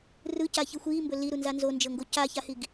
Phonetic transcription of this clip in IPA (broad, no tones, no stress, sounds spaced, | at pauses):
r ɯ c a ç ɯ xʷ iː m b ɵ l i ɾ u n z a n z o n d͡ʒ ɤ ŋ ɡ o c a ç a h i ɡ